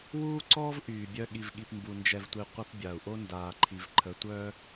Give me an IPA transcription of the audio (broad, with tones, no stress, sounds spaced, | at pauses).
w uː˦ ǀ ɔː˦ v ʔ yː˨ bʲ œ˦ ɠ i˨ v ɠ i˨ p m b u˨ n d͡ʒ ɛ˨ v tʷ i˨ qʷ ə˦ p bʲ a˨ u̯ ʔ o˦ n d aː˨ ǃʰ i˨ v ǃʰ ə˨˦ tʷ œ˦